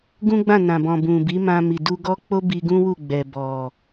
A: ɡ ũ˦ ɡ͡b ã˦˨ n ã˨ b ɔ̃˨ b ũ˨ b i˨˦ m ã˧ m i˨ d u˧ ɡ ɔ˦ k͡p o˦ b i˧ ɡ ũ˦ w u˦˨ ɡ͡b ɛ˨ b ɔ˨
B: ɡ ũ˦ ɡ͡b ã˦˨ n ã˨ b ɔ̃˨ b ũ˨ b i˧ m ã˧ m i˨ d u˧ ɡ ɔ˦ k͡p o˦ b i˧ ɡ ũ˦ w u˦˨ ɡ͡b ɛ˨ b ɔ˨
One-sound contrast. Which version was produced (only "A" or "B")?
A